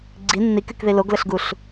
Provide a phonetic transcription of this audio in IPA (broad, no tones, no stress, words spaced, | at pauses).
ɡ͡ǀi nːikykði loɡləɬɡuɬ